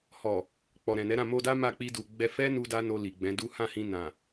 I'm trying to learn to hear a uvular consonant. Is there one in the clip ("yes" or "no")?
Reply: no